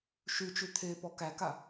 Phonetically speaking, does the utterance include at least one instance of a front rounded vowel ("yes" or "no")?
yes